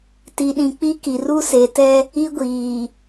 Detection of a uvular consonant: absent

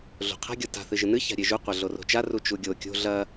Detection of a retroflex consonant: absent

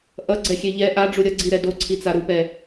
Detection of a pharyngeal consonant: absent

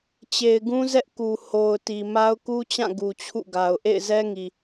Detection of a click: absent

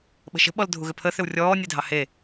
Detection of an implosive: present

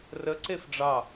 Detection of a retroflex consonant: present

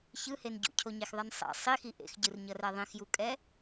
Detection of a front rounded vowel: absent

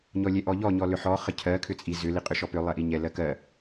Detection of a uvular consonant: present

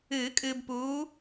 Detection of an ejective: present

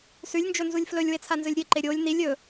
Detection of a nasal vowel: absent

